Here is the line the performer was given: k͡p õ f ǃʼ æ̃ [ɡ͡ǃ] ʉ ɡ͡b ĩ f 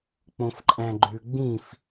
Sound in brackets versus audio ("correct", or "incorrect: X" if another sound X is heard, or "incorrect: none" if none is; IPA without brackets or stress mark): correct